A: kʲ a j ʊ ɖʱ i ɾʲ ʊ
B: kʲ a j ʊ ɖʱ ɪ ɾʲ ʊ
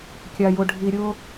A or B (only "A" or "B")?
A